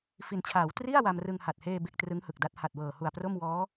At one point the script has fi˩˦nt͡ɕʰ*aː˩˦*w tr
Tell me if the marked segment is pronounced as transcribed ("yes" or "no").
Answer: yes